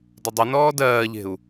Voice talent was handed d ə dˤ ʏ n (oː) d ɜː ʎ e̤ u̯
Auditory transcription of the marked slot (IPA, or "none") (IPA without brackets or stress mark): ɔː